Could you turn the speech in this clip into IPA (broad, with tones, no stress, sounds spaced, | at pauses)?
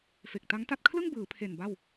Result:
f e˨˩ k̚ t a˦˥ ŋ t a˥˩ t̚ kʰ l ɯ˥˩ ŋ b ɯː˩˦ pʰ e˨˩ n b a˥˩ w